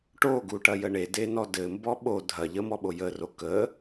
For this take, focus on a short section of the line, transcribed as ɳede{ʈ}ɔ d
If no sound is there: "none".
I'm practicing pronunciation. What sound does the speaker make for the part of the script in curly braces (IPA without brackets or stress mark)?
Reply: n